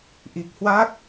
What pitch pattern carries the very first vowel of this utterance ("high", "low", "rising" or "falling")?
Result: low